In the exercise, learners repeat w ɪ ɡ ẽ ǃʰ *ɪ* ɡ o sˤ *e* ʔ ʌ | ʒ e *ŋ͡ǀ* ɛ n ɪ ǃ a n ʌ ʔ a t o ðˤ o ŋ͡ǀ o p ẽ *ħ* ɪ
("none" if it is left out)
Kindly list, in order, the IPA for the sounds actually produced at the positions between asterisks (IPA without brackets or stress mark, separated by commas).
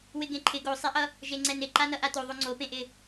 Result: ɪ, e, ŋ͡ǀ, ʔ